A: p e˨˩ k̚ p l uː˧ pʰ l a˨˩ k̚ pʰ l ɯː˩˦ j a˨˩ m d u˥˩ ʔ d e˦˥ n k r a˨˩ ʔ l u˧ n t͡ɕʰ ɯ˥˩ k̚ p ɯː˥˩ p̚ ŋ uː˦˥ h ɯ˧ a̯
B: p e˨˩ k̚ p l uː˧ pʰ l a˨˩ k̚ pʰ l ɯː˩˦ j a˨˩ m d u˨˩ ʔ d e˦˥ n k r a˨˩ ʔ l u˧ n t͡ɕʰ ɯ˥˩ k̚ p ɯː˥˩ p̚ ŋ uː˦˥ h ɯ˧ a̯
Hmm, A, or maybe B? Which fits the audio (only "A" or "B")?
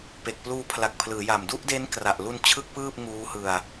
A